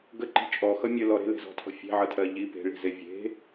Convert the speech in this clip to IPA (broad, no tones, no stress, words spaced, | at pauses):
ɡəǃi̤ t͡ʃʼɔxʌ mʲəlɔ ɾe̤le̤zɔ̤tʰɔ̤ fʲe̤ʕʌtʰɜ ʎi pe̤ɭi̤ze vʲe̤